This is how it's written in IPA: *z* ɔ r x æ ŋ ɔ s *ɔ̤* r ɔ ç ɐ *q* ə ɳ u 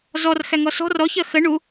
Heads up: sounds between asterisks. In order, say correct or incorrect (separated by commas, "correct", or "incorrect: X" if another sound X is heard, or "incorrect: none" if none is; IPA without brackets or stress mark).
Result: correct, correct, incorrect: x